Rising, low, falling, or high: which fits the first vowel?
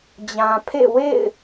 low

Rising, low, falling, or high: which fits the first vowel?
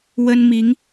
high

